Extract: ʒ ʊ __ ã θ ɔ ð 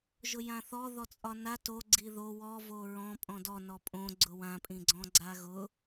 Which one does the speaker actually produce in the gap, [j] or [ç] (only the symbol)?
j